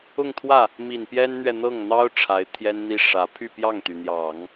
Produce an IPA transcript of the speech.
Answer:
ʊ˥˧ŋt̪ʰwä˥˩ | mi˨˩npjɛ˥nn̪ɥɛ˨ n̪ɤ˥˩ŋ n̪ɑ˥ʊ̯ ʈ͡ʂʰa˧˥ɪ̯t̪ʰjɛ˥nn̪i˥ ʂä˧˥ pʰy˥˧pjɑ˥˩ŋt̪y˩n̪jɑ˨˩˦ŋ

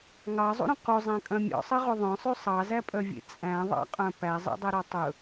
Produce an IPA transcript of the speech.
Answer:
ŋɑzˤṵɾœ̃ quzˤæ̃kʼœ̃ mʲɔ̰sˤɛʁo ðˤœ̃sˤy sˤɑzæpʼœvʲḛ t͡sʼæ̃ðˤɑ̰qʼœ̃ pæzˤḛdˤɛɾɔ tˤɵ

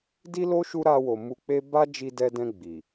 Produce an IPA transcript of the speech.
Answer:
di˦lo˦ ʃu˦ ɾa˧wo˨ mu˧k͡pe˦ ba˦d͡ʒi˧dɛ˧dɛ̃˧ ɡ͡bi˨

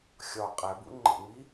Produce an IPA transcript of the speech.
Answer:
xʲɒ qʼæbṵ ŋ͡ǃḛŋ͡mi

